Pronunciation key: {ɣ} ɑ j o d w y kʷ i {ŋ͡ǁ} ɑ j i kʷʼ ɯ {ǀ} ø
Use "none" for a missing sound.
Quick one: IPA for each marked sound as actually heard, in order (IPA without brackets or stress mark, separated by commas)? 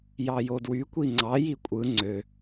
j, ŋ͡ǀ, ŋ͡ǀ